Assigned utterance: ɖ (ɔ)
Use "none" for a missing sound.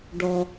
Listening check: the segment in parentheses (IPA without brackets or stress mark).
ɔ